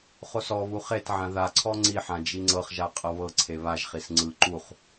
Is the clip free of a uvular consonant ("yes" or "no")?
no